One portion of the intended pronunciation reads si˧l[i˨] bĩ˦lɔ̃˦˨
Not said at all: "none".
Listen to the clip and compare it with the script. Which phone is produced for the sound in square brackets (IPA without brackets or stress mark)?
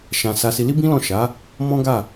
i˦